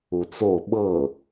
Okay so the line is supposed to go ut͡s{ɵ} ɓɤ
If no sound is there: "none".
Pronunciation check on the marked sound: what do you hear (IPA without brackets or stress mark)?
o